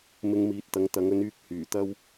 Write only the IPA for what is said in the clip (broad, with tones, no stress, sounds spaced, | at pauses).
m ɪ˧ ŋ m iː˨ t̚ t̪ ɐ˨˥ ŋ t̪ ɐ˨˥ ŋ ɵ˨˥ n yː˧ k̚ h yː˨˩ t̪ ɐ˥ w